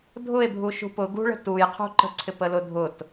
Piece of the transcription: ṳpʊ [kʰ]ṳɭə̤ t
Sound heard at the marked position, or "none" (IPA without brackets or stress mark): ɡ